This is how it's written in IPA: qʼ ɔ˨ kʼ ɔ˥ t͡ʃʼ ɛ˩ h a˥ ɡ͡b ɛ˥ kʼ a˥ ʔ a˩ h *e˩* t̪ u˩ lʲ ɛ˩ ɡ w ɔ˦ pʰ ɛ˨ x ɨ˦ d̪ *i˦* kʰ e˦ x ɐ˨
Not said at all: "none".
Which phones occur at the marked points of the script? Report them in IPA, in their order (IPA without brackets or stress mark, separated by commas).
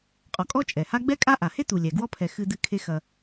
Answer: e˥, ɨ˦